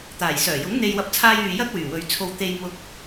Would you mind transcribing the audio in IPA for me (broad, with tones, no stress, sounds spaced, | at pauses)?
t̪ aː˨˩ j s œː˨˩ j ʊ˨˥ ŋ n̪ e˧ j w ɐ˨˥ p̚ t͡sʰ aː˧ j yː˨ j ɐ˥ k̚ w yː˨˩ w ɵ˨˧ ɥ t͡sʰ o˧ w t̪ e˧ j m ʊ˧ k̚